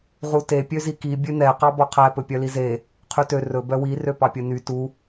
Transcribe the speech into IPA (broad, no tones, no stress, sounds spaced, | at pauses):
ʁ u t e pʲ ø z i k i bʲ ø n̪ ɛ q ɑ b ɔ qʰ æ p ɵ pʲ œ l i z e | qʰ y t ø r ɵ b œ w i r ø p ɑ pʲ ɵ n y t u